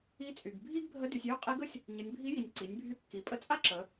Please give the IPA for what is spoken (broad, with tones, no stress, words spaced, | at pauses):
i˧˥t͡sʼy˩ɡ bʱi˥ɡbʱə˧˥ dy˩˧sʲjy˥ qʼi˧˥ɡə˥sʲ | ɲə˩˧nʲ bʱi˧˥ji˩nʲ ǀi˩˧nʲbʱy˧ kːi˩˧pʼə˧˥t͡sʼa˥ǁə˩˧